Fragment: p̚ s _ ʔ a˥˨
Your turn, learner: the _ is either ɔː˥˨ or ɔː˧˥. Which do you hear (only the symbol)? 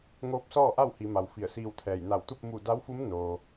ɔː˥˨